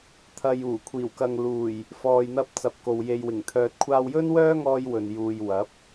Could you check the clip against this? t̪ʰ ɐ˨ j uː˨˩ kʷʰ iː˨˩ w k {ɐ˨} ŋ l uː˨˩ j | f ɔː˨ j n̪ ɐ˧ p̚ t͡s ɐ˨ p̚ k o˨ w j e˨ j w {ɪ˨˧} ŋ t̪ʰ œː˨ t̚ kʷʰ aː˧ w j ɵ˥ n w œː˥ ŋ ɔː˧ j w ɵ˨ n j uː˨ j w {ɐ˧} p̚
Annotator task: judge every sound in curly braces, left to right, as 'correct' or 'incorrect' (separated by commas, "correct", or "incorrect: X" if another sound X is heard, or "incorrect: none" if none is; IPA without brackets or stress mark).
correct, incorrect: ɪ˨˩, incorrect: ɐ˨˥